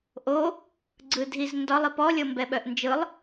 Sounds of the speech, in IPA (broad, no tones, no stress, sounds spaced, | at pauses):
ʔ o | ɡ͡ǀ ɯ dʱ i z n d ɒ lˠ i p ɔ lʲ ɤ m b ɛ ɓ œ ʔ n d͡ʒ ɯ lˠ